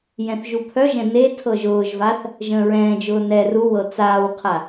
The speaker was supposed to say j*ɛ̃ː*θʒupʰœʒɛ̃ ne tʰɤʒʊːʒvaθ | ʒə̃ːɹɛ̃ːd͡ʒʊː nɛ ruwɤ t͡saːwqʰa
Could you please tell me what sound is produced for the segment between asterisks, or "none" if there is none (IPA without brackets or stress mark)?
ɛ̃